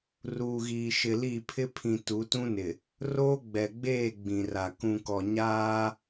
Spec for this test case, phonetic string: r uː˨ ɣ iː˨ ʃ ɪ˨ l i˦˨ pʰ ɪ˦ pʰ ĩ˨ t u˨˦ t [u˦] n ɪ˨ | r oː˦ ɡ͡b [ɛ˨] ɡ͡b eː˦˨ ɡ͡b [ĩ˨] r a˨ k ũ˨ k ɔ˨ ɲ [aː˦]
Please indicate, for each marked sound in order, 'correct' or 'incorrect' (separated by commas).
incorrect, correct, correct, correct